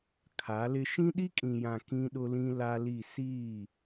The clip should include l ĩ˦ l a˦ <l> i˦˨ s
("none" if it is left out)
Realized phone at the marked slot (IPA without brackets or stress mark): l